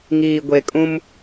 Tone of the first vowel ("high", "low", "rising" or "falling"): low